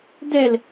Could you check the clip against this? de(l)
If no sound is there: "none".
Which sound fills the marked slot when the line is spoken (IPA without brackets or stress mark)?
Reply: l